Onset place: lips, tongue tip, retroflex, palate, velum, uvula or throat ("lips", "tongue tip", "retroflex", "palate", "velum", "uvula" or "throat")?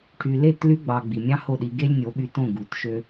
retroflex